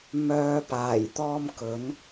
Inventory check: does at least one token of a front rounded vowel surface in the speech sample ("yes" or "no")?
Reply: yes